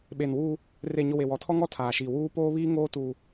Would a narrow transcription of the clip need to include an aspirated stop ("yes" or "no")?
yes